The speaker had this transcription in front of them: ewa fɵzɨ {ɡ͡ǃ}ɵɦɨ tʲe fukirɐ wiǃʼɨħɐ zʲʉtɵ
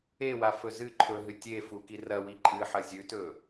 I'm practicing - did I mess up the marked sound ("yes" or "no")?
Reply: yes